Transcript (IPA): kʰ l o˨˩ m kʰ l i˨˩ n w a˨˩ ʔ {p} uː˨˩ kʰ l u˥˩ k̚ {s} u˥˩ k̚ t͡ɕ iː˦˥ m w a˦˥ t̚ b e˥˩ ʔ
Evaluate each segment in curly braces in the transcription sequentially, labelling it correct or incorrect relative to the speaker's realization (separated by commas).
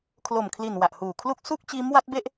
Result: incorrect, correct